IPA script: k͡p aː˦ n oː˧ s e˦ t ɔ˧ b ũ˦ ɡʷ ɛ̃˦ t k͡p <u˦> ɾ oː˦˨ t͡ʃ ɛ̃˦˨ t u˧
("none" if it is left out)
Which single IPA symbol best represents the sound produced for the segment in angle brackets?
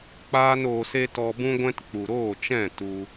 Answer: u˨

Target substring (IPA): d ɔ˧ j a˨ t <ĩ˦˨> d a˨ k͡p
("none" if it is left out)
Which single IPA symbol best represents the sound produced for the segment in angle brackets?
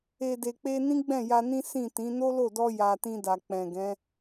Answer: ĩ˧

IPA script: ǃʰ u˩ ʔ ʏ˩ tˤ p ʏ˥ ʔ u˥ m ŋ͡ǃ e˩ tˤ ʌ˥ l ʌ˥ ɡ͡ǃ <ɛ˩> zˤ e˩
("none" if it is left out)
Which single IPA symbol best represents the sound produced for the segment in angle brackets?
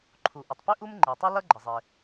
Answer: ə˩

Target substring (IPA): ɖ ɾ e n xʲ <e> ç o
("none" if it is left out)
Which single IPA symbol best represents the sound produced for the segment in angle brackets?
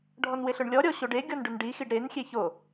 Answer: e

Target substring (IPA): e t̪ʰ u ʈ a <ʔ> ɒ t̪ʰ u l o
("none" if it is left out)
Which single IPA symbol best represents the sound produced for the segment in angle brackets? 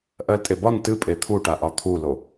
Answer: ʔ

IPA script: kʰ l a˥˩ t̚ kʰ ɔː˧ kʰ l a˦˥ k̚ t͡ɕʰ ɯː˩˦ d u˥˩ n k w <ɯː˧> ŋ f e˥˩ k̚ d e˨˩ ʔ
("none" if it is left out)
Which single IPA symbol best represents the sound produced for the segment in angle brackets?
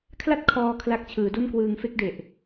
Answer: ɯː˧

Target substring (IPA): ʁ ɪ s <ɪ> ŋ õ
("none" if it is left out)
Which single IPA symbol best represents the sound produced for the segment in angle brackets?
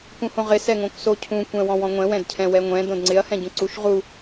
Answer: ɛ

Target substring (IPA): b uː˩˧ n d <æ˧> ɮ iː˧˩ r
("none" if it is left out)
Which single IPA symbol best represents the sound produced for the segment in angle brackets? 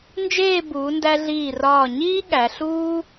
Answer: æ˧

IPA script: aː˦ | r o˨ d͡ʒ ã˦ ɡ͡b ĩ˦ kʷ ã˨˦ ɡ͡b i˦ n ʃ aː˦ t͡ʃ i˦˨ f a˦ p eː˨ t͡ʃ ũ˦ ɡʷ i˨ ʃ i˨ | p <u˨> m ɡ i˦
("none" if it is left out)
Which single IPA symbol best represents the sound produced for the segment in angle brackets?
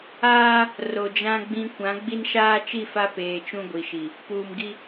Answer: uː˨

